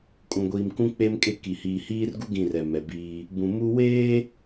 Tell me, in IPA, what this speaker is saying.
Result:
kʼ ũ˨ ɡʷ iː˨ m k ũ˦ k͡p e˦ m kʼ e˦˨ k i˨ h iː˨ h iː˦ r ɡ u˦ ɡ ĩ˦˨ r ɛ˨ m ɛ˨ b iː˦ | b ũ˨ m u˦ w eː˦

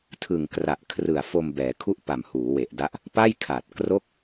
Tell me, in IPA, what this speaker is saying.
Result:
tʰ ɯ˨˩ ŋ k r a˨˩ ʔ kʰ r ɯ˨˩ a̯ f o˧ m b ɛː˩˦ kʰ u˥˩ ʔ p a˨˩ m h uː˩˦ w e˨˩ ʔ d a˦˥ ʔ | p a˥˩ j kʰ a˨˩ t̚ k r o˥˩ k̚

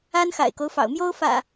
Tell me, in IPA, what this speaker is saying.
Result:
a˦ n x a̰˨˩ ɪ̯ k o˦ ʊ̯ f ɑ̰˨˩ ʊ̯ m j o˦ ʊ̯ f ä̰˨˩

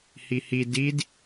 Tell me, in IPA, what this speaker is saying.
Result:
h i h i d i d

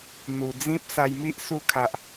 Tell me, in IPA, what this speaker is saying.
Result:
n̪ u˨˩ d͡z ĩ˦ p̚ s a˧ j m i˦ ʔ s u˧ kʰ a˨ ʔ

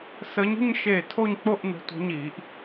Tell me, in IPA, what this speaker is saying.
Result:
s ə˨˦ ɲ ə̤˥˧ ɲ ʃ e˧˩ tʰ o˥˧ ɲ k͡p o˥˧ ʔ n ə̤˨˦ tʷ ə̤˨˦ ɲ i˨˩˦ ʔ

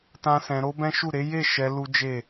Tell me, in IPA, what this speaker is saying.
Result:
t ã˦ s ɛ̃˧ ɾ o˦ b ɛ̃˦ ʃ u˦˨ ɾ e˨˦ j e˦˨ ʃ ɛ˧ l u˦ d͡ʒ e˦˨

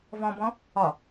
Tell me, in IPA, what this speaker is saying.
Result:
v ɔ̃ b ɔ̃ | ɒ

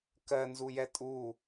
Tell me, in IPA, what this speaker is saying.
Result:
k ɜ n z u j ɛ tʼ u

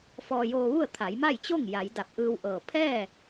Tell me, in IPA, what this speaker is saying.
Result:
f ɔː˧ j oː˧ ʋ u˥˨ ə̯ t̪ʰ a˩˧ j m a˥˨ j t͡ɕ o˥˨ ŋ j a˩˧ j d a˧˩ p̚ ʔ ɯː˧ w ʔ ɤː˧˩ pʰ ɛː˥˨

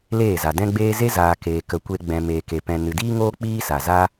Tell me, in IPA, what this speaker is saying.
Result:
l eː˦˨ z a˨ d ɛ̃˦ ɡ͡b eː˦ z e˦ z aː˨ k eː˨ k ə˨˦ kʷ e˧ ɡ͡b ɛ̃˨ m eː˨ k e˨ p ɛ̃˨ n ɨ˨ d iː˦ ŋ oː˦ k͡p iː˦ s a˨ z a˧

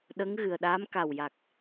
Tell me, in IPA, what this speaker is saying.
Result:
ɗ ə˧˥ ŋ ɣ ɨ˨˩ ə̯ ɗ aː˧˥ m k a˨˩ w j a˨˩ k̚

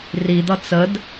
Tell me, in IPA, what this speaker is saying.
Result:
r i d̪ ʌ t͡s ə d

